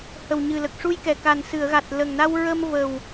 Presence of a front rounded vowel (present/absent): absent